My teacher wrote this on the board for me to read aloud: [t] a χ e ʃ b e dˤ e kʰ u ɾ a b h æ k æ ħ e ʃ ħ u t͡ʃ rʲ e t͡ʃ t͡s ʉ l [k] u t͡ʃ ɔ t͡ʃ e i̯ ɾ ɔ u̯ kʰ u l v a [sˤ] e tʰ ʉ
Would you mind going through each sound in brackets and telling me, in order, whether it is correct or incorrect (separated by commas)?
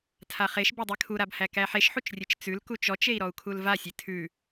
incorrect, correct, incorrect